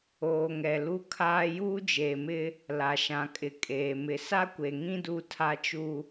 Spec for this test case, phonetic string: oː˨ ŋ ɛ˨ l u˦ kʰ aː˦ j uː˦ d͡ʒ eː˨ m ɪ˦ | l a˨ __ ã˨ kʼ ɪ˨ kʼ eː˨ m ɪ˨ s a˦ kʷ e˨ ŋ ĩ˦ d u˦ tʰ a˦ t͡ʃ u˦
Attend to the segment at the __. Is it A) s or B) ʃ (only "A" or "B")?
B